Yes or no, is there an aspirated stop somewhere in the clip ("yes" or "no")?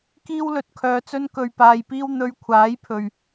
yes